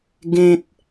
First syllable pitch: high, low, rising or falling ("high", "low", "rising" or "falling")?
high